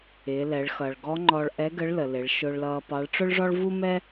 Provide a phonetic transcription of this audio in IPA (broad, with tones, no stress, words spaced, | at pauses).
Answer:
ɪː˩˧lɛ˩˧ɭxʌ˩ɭ ɡɔ˧˥ŋ͡ǃɔ˧ɭʔɛ˧˥ɡə˧˥ɭ lə˩lɪ˩˧ɭ ʃʊː˧ɭlʌː˧pɑ˧˥ɭ ʈ͡ʂʊ˥ɭʐɔ˥ɭ vu˥mɛ˥